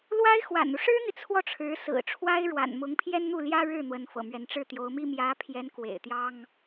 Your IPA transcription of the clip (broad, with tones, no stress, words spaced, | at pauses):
lwa˥ɪ̯xwa̰˨˩nu˦ ʂɻ̩˥n̪i˨ t͡sʰwɔ˥˩ʈ͡ʂʰɻ̩˧˥sɹ̩˨˩ ʈ͡ʂʰwa˥ɪ̯ɻwa̰˨˩nmʊ˧˥ŋ pʰjɛ˥nn̪u˥˩ljä˥ ɻɻ̩˥˩ n̪wə˧˥nfɤ̰˨˩mɥɛ˧˥n ʈ͡ʂɻ̩˥˩t̪jo˧˥ʊ̯mi˥ mjä˧˥pʰjɛ˧˥n kwḛ˨˩ɪ̯t̪jɑ˥ŋ